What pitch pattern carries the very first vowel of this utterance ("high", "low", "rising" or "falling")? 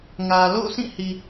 low